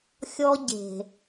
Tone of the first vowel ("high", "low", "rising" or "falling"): high